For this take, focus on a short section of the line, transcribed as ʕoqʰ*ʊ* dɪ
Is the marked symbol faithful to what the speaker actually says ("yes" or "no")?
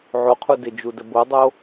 no